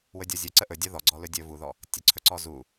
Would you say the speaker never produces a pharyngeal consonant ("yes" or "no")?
yes